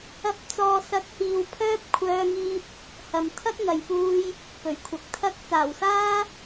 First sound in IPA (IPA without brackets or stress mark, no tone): ɐ